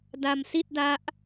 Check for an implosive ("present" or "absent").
absent